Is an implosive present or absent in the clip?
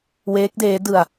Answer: absent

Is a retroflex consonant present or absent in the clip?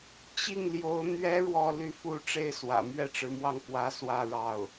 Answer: present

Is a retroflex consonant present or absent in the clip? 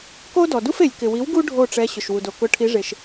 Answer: present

